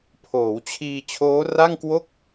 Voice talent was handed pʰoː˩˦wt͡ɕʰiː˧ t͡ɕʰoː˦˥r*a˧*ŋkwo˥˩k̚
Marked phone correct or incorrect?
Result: incorrect